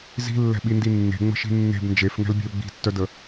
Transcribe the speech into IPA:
z i̤ lː ɛ̤ ɓ i n d i nː e̤ ŋ͡m ə̤ ʃ i̤ nː e̤ b n d͡ʒ e f ŋ ɛ̤ l bʲ ɛ̤ u̯ ɡ͡b i̤ tː œ d ə

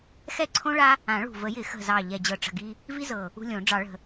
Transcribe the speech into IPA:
x ɛ˦ ǀʰ õ˦ ɭ a˦ | ã˨˩˦ ɭ ṳ˨˩ v ə˨˩˦ j ɪ˨˩˦ x ə̤˨˩ z ɑ˨˩ ʎ ɛ˨˩ d͡ʑ ɤ˨˩ ʈ͡ʂ ə̤˨˩ ɡ i˦ | v i˦ z ɤ˨˩ | ṳ˦ lʲ õ˨˩˦ ɖ͡ʐ ɑ˨˩˦ ɭ ə̤˨˩

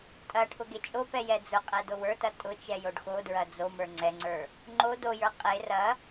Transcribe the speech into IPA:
tʼ ɐ ʈʰ ʊ ɡ e t͡ʃʼ o p ɛ j ɛ d͡z ʊ qʼ ɛ d o w ə˞ t ɐ tʼ ʊ t͡ʃ ɛ j o ɖ x o d ɹ ɐ d͡z o m ə˞ ŋ͡ǀ ɛ ŋ͡ǀ ə˞ | ŋ͡ǃ o d o j ə˞ qʼ e r ɐ

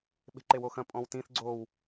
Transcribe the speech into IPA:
ɓ e̤ ǃ e w o x ɐ̃ pʼ ɔ̃ w t ĩ θ ɡ͡ǀ o w

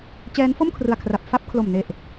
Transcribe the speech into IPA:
t͡ɕ ɛː˦˥ n f o˥˩ m kʰ r ɯ˨˩ a̯ kʰ r a˨˩ p̚ f a˥˩ p̚ kʰ l o˨˩ m n e˨˩ ʔ

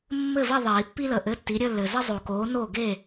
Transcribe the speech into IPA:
mː ɘ˥˨ v i˥˨ ðˤ iː˨˩˦ pː i˥ l ə˨ ʔ ɘ˧˥˧ tː i˨˥ ɾʲ ə˧˥˧ lː ɘː˨ z ə˥ zˤ o˨ k oː˨˥ n oː˥˨ ɡ e˥˨

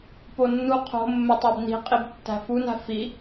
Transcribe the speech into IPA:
p o nː u qʰ o̤ mː e tˤ æ b n i̤ qʼ i b tː æ̤ f u n æ̤ f i

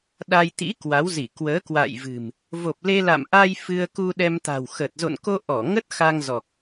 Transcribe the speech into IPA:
ɗ a˧ j t̪ ḭ˧˥ k w a˨˦ w z i˧˩ k w əː˨˦ k w a̰˧˨ j v ɨ̤˨˩ m | v o˨˩ p̚ l e˧ l a̰˧˨ m ʔ a˧ j f ɨ˧ ə̯ k u˧ ɗ ɛ˧ m t̪ a̤˨˩ w x ə˨˩ t̚ z o̰˧˨ n k o˧ ʔ ɔ˧˩ ŋ ə˦˥ t̚ x a˧ ŋ z ɔ˨˩ k̚

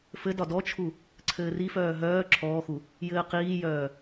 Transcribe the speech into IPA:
f ɘ d ɒ d ɔ t͡ʃʰ u | ǀʰ ɘː r i f œː ɦ œː ǁʰ ɔː x u | j ɘː q iː j œː

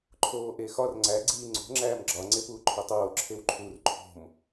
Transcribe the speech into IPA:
ǃʰ oː ʔ e x ɒ r ŋ͡ǀ æ ɡ͡ǀ iː ŋ͡ǀ o̤ ŋ͡ǁ æː m ɡ͡ǁ ɒ ŋ͡ǀ e p uː ǃʰ u tˤ oː ǁʰ e w ǃʰ u r ǃʰ o̤ m

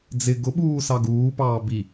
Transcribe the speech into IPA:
d͡z ɪ ɡ ʊ ɓ uː s ɑ ɡ uː p ɑː b i

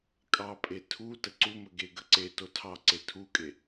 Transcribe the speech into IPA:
kʼ ɑ pʼ e tʰ u t ə ǀ u m ə ɡ e ɡ ə ǀ e t o tʰ ɑ ǀ e tʰ u kʼ e

